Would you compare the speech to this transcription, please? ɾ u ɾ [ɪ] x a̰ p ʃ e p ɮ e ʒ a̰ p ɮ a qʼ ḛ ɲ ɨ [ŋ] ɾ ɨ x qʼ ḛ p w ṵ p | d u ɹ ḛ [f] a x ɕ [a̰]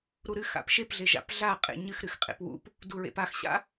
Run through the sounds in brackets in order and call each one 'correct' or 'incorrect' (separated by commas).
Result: incorrect, incorrect, incorrect, correct